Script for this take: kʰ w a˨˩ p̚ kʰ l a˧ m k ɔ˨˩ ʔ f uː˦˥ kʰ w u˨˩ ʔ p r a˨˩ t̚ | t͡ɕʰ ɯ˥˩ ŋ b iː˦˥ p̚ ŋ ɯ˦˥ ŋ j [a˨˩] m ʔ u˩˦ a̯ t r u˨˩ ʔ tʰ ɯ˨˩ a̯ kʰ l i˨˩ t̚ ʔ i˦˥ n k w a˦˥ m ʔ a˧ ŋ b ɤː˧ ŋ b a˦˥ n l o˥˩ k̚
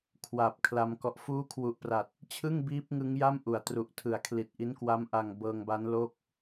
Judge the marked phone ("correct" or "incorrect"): incorrect